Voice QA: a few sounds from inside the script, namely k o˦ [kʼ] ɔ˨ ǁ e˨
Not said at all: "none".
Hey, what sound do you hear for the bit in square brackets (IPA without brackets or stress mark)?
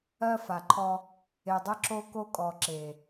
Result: kʼ